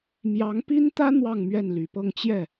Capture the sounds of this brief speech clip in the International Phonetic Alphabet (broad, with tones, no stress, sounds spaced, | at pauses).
m j ɑ˧˥ ŋ p i˥ n t̪ ä˥ n̪ w ɑ˥˧ ŋ m ɥ ɛ˥˩ n l y˨˩ p ɤ˥˧ ŋ t͡ɕ j ɛ˥˩